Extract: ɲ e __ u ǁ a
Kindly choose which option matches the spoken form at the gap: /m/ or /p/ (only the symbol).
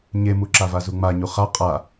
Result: m